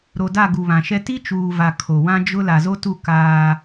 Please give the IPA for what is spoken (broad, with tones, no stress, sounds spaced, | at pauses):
ɾ o˨ d a˦˨ ɡ u˨ β ã˨ ʃ ɛ˦ t i˦ t͡ʃ uː˨ v a˨ kʰ o˨ w ã˦ d͡ʒ ʊ˦ l a˨ z o˦ t u˦˨ k aː˦